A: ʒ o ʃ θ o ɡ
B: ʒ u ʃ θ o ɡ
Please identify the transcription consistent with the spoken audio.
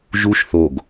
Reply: B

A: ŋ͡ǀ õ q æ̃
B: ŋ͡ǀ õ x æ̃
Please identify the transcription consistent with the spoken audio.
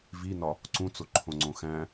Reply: B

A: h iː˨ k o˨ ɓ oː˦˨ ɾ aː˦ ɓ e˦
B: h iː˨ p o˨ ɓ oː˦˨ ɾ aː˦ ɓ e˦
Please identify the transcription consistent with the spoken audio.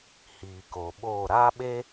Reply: A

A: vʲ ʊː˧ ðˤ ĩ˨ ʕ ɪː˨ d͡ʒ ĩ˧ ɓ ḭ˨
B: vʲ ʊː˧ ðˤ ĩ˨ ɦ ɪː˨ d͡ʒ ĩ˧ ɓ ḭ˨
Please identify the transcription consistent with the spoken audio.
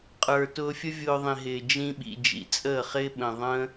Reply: B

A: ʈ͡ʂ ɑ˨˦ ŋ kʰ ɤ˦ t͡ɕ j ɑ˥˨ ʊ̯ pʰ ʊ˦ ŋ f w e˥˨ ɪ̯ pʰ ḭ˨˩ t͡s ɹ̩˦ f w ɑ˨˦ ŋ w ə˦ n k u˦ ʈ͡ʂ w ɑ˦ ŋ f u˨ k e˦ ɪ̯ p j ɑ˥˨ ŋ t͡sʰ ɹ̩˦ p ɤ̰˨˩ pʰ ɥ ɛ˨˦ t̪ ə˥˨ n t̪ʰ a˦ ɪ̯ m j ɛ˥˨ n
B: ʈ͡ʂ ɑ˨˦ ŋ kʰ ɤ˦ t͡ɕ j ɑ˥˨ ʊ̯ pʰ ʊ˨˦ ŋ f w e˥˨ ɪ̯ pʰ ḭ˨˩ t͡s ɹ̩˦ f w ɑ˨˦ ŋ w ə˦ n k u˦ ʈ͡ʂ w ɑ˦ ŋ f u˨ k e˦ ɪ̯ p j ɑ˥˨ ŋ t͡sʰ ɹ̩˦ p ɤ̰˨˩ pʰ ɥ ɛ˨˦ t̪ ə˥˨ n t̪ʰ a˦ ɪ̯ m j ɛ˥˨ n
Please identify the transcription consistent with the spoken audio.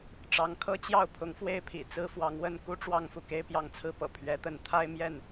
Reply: B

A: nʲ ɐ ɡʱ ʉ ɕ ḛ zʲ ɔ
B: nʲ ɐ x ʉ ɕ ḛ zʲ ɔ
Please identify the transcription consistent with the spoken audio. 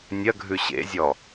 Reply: A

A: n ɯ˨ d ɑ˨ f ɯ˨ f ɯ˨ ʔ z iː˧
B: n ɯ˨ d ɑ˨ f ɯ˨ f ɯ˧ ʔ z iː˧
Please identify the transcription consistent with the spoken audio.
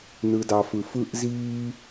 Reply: B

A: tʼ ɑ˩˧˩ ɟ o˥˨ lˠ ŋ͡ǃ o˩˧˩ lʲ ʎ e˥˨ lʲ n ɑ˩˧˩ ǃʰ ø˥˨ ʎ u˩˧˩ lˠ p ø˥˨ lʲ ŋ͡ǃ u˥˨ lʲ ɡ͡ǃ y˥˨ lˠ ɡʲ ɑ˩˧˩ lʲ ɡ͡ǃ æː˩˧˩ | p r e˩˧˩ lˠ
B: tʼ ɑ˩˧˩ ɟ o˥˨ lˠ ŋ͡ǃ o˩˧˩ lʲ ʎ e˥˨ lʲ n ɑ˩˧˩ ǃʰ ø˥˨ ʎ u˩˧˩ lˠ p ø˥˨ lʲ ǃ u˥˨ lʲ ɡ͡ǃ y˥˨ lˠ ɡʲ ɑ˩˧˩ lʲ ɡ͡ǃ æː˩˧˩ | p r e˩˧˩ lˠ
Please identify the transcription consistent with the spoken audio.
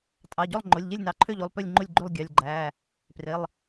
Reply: A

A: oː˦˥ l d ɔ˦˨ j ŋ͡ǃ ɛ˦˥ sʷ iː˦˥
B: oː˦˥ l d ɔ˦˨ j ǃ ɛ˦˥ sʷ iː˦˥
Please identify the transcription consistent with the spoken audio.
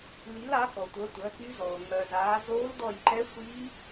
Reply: B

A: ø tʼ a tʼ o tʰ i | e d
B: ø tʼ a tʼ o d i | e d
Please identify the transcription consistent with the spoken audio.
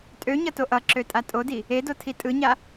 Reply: B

